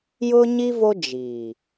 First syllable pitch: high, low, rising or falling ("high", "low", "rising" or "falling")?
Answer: high